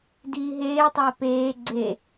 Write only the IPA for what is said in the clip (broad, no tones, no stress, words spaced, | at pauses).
diːɦeːtˤʌː peː ɡ͡ǀe